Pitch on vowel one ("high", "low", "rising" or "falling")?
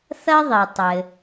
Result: high